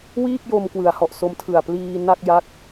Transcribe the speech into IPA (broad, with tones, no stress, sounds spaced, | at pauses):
w iː˥˩ k̚ j o˧ m k w ɯ˩˦ a̯ h ɔ˨˩ ʔ s o˦˥ m tʰ ɯ˨˩ a̯ p l iː˧ n a˥˩ k̚ j a˥˩ k̚